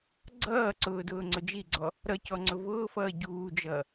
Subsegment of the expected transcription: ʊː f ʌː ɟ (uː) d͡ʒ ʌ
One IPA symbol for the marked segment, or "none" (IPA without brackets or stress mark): uː